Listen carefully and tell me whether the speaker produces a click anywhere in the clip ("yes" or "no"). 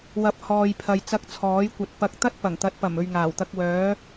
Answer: no